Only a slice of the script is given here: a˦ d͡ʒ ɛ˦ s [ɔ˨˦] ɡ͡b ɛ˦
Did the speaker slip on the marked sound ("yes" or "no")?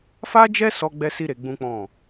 yes